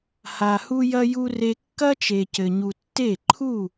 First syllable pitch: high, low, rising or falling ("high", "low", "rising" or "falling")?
low